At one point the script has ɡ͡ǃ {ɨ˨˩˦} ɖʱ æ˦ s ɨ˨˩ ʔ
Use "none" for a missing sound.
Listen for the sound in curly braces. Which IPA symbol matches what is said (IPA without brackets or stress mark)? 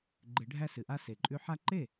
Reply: ɨ˨˩˦